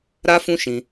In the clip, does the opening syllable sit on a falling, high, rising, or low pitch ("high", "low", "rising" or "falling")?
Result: high